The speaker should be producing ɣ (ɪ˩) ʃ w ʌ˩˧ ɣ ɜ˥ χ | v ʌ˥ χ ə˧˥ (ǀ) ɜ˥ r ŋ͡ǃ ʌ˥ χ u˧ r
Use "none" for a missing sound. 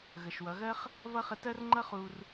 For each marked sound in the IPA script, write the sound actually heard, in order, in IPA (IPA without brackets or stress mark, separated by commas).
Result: ə˩, t